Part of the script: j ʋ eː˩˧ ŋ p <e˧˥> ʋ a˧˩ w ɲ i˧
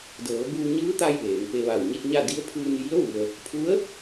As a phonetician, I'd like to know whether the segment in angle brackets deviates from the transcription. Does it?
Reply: yes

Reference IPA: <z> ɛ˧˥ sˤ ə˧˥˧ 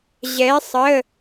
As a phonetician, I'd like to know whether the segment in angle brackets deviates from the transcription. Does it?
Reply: yes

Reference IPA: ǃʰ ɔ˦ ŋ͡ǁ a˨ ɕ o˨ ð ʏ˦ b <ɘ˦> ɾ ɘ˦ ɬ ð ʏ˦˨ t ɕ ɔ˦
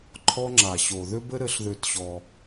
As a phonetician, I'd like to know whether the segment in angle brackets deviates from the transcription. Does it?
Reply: no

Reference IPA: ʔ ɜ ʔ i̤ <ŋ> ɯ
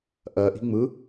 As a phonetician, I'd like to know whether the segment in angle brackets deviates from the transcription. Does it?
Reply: yes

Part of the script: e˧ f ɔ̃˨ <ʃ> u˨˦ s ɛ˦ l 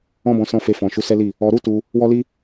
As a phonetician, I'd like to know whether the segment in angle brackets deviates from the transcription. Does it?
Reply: no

